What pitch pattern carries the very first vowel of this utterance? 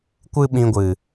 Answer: high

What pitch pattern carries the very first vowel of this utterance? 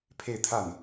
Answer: falling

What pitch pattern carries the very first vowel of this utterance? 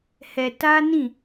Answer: low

